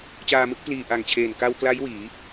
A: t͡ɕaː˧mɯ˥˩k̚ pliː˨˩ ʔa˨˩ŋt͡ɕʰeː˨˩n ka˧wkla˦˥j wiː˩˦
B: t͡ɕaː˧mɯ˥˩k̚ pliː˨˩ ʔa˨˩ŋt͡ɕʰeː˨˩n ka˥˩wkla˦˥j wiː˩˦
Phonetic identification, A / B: A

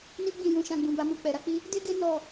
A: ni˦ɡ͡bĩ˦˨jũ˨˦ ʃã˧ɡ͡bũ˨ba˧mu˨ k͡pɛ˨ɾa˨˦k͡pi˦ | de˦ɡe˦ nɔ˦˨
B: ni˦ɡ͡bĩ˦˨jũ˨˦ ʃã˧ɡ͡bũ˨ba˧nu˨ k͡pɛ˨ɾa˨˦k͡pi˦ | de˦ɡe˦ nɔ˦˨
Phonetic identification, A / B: A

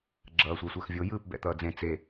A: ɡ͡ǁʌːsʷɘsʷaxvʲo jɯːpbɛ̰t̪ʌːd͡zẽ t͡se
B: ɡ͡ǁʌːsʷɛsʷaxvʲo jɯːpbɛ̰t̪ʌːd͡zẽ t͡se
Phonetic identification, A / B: B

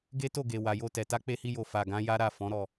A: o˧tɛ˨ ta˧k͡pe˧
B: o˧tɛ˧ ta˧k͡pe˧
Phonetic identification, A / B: A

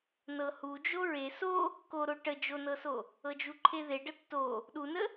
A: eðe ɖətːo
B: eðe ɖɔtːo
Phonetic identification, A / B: A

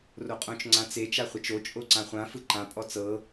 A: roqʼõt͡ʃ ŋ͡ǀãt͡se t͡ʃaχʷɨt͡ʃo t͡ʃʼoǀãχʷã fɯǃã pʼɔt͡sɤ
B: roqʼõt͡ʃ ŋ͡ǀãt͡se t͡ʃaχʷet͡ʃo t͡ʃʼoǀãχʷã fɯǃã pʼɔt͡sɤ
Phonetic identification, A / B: B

